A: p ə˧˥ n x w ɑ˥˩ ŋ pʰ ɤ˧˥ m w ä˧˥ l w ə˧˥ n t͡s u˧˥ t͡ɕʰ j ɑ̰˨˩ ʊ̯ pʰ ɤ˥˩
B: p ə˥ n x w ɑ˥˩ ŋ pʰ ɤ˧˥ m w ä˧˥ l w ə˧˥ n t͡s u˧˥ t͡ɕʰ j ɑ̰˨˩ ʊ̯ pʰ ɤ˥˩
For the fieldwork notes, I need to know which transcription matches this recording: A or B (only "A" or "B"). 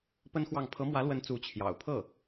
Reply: B